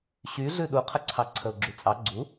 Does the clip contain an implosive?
yes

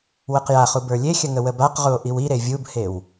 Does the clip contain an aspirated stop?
no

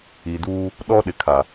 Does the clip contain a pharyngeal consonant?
no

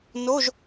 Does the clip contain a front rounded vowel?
no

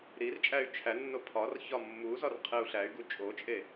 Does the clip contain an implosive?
no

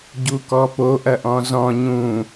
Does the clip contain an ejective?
no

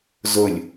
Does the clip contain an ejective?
no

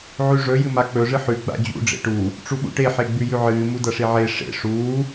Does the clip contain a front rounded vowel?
no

